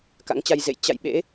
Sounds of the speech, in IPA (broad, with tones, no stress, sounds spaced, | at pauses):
k a̰˧˥ ŋ t͡ɕ a˧ j z ḛ˧˨ j t͡ɕ a̰˧˨ j ɓ ḛ˧˥